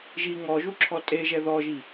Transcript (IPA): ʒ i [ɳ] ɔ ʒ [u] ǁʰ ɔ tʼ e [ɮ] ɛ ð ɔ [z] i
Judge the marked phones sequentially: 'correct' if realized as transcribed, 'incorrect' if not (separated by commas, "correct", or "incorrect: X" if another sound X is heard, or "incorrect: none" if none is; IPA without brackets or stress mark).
incorrect: ŋ, correct, incorrect: ʒ, incorrect: ʒ